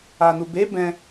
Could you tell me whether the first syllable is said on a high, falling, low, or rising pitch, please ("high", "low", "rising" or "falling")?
low